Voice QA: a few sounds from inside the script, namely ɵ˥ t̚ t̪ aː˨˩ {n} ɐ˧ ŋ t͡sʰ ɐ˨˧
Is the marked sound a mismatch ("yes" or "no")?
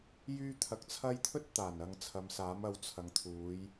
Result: no